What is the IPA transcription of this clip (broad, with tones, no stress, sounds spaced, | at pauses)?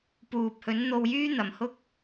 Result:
p uː˨ p̚ h ɵ˨˥ n n̪ o˧ w j yː˥ n̪ ɐ˨˩ m h ʊ˥ k̚